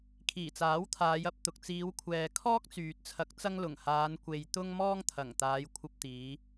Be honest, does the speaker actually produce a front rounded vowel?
yes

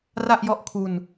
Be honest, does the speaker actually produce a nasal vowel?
no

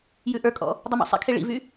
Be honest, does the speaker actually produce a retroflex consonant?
yes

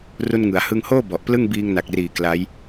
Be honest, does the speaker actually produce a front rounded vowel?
no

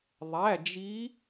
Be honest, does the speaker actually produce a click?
no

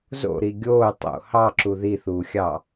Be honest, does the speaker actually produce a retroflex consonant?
no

